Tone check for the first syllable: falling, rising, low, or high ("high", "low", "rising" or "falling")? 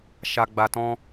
low